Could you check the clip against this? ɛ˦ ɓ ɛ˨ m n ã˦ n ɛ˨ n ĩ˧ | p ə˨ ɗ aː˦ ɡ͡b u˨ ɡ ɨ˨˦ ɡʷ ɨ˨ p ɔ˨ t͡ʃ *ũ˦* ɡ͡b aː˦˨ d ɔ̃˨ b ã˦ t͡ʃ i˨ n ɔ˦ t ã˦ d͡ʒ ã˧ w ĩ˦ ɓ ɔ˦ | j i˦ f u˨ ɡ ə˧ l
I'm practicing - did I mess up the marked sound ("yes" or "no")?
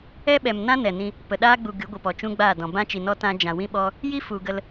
no